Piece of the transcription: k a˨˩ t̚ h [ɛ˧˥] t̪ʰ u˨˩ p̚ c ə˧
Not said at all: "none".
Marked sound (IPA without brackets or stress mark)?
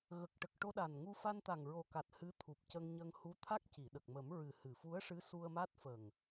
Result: ɨ˧˥